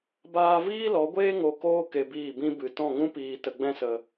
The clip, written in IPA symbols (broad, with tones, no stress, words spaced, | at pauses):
baː˧viː˦lɔ˨˦ɡʷeː˦ ŋo˧koː˦ ke˧biː˦˨bĩ˦ bɨ˨ tɔ̃˦˨ŋũ˦piː˧ tə˧ɡ͡bɛ̃˦sə˧